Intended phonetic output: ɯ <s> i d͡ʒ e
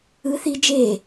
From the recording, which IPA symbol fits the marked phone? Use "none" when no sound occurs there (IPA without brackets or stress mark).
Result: θ